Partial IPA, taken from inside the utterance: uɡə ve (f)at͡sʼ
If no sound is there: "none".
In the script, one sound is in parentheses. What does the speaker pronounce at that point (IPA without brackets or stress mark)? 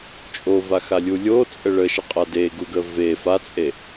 f